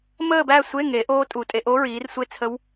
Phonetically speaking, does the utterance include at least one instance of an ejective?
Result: yes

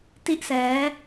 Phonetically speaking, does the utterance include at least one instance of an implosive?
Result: no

